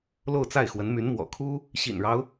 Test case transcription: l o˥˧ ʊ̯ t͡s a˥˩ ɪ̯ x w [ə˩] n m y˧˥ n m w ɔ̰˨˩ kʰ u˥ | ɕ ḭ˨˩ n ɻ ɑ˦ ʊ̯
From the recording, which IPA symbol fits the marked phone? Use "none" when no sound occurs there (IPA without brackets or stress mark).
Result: ə˧˥